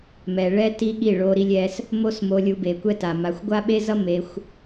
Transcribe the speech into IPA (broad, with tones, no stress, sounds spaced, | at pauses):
m ɛ˨ ɭ ɛ˦ t i˦ ɠ i˦˨ ɭ o˧ ɾ i˧ lʲ ɛ˧ s | m o˦ s m o˧ lʲ u˧ b e˨ kʷ ɛ˦ t a˨ m a˨ xʷ ɡʷ a˦ ɓ e˦ z ʌ˦ m e˧ xʷ